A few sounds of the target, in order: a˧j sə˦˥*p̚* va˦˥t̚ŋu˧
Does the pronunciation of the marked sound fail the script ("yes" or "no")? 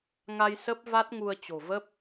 no